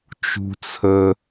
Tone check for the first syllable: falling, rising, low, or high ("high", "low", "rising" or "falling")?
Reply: high